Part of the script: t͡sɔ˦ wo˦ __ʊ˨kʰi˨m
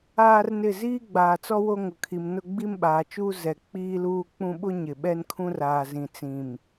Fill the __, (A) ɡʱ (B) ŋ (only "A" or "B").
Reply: B